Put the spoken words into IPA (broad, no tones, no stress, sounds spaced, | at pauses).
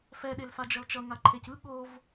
f ɛ ɗ e l f a d͡ʒ ʌ l t͡ʃ ʌ ŋ a ǃʰ e c ɯ ɠ o v